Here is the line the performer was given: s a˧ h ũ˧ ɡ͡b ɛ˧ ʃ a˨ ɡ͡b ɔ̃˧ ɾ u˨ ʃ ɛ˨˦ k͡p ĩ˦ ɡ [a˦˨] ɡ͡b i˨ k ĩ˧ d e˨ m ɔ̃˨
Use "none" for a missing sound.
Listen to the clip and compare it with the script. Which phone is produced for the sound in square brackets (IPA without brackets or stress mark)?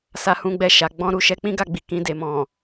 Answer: a˦˨